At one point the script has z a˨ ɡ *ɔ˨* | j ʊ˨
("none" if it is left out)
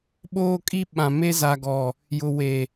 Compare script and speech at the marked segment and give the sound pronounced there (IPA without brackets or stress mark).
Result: ɔ˨